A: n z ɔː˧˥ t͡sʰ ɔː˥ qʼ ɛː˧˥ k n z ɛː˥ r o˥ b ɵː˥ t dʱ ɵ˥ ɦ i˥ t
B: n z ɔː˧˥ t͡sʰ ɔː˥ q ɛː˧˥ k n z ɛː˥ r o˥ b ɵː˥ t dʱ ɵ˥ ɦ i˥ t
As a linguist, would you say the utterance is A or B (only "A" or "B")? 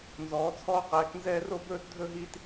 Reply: B